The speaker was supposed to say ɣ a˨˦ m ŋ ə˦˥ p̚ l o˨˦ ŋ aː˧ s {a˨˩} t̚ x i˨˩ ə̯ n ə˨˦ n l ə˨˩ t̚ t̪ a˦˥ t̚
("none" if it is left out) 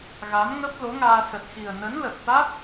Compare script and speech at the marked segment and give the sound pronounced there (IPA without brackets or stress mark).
ə˨˩